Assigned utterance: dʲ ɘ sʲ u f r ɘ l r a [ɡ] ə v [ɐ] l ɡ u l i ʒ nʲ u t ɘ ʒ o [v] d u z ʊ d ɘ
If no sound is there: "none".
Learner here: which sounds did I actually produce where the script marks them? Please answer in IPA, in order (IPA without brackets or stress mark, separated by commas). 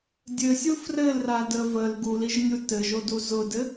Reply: d, ə, none